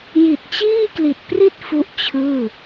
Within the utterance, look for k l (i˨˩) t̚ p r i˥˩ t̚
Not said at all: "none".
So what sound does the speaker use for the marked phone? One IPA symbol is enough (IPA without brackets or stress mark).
i˨˩